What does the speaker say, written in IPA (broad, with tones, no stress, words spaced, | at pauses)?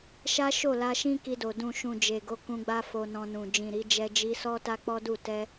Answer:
ʃa˦ʃo˦˨ la˧ʃĩ˦ki˧do˨ dũ˨ʃũ˨ d͡ʒe˨ɡo˨˦ kũ˧ɡ͡ba˦ fo˧nɔ̃˧nũ˨ d͡ʒĩ˨ɾi˨˦ d͡ʒɛ˧d͡ʒi˧ sɔ˦ ta˦k͡pɔ˦du˦˨ tɛ˧